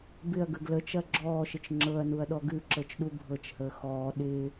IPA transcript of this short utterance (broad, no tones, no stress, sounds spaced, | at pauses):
b ɪ ɐ̯ ɡ ə ɡ l ə t͡ʃ ɐ ɡ͡ǁ ɔː ʃ ɪ t͡ʃ ŋ͡ǁ ɤ ɐ̯ n u ɐ̯ ɗ ɔ ɡ ʉ ǁ ɤ t͡ʃ ɗ u bʱ ɤ t͡ʃ h əː x ɔː ɗ ɪː